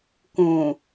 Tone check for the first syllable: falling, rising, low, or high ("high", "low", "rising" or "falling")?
low